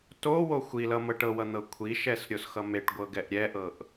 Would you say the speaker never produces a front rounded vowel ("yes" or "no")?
yes